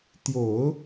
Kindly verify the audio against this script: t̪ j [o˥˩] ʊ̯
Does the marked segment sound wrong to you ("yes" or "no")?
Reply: yes